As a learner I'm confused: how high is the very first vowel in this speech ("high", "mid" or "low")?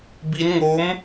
high